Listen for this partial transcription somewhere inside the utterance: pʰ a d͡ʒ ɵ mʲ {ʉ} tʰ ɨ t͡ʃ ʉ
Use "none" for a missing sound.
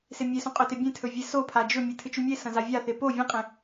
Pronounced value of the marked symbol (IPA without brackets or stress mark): ɨ